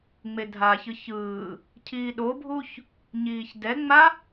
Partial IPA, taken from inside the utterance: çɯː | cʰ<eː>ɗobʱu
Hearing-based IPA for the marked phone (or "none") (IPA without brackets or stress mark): iː